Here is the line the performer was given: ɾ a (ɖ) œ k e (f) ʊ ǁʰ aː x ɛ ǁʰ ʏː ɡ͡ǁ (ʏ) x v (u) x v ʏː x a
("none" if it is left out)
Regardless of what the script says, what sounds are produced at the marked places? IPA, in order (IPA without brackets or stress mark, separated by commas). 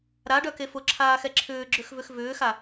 ɖ, f, ʏ, ʏ